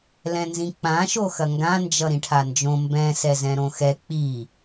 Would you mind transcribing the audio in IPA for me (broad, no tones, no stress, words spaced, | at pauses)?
lɛ̃nzĩk͡pã ʃoxɐŋɡã nd͡ʒʌɾĩʈʰand͡ʒõ mbɛ̃ sɛzɛ̃ɾõxɛ k͡pi